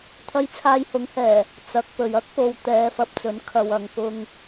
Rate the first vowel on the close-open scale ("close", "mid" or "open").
open